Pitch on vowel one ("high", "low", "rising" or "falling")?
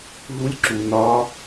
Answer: rising